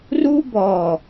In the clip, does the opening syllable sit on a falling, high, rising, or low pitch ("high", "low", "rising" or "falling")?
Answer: high